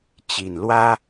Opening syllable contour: low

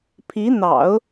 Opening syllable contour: rising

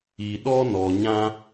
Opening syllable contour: low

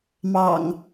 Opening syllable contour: low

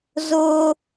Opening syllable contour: high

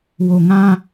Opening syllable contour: low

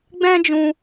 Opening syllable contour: high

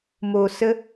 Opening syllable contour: low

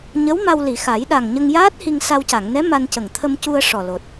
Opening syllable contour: rising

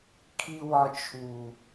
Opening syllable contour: high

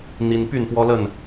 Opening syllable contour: high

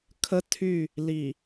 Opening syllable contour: high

